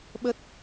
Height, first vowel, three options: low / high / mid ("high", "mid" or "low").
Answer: mid